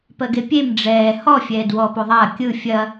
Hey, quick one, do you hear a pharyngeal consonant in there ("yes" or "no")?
no